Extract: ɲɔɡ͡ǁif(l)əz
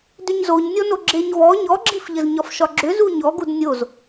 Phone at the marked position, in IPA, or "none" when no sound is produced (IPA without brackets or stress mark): ʎ